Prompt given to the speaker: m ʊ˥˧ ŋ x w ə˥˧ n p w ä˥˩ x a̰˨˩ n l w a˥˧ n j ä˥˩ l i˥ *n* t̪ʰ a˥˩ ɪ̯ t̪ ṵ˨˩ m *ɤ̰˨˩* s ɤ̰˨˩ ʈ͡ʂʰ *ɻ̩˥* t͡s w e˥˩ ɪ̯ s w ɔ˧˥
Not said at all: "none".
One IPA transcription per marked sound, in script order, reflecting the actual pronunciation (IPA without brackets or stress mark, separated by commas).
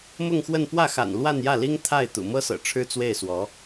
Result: ŋ, ɤ˥, ɻ̩˥